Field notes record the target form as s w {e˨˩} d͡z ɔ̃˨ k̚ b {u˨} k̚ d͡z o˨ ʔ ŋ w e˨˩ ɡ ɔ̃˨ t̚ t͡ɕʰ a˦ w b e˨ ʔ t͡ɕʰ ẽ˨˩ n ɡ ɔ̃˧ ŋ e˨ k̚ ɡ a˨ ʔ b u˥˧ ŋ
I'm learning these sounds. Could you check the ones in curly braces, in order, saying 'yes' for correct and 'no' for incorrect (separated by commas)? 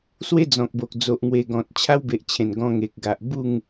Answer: no, no